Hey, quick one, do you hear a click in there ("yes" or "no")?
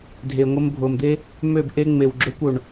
yes